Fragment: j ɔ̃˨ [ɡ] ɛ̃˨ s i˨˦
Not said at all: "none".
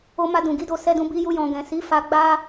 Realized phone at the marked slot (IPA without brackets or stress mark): ɡ